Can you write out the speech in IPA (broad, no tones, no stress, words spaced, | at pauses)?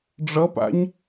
ɖ͡ʐʌpa̰ɲ